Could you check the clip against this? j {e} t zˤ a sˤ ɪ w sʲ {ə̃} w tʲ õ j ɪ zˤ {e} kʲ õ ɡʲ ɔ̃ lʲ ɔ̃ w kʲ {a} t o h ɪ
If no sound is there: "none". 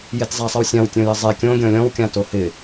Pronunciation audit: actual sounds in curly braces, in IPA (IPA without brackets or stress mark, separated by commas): e, ã, e, ã